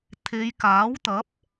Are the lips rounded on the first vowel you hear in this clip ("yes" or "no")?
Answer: no